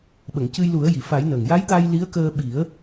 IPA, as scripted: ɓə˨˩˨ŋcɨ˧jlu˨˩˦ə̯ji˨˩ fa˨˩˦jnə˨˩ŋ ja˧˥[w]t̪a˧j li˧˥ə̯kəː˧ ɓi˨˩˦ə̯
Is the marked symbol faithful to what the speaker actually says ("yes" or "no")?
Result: no